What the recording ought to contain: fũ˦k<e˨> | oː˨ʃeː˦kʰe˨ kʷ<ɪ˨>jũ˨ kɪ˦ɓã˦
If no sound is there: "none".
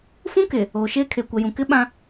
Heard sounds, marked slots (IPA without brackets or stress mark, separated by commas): e˨, ɛ˨